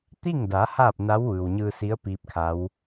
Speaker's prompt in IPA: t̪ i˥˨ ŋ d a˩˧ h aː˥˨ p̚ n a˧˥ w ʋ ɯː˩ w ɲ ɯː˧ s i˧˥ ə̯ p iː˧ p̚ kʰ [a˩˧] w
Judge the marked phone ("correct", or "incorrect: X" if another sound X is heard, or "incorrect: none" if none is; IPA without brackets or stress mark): incorrect: a˧˥